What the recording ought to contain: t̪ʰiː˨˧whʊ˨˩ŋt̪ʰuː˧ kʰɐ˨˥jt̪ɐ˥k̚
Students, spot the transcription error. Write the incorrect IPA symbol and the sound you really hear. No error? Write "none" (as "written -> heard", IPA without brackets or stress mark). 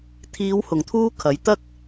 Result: none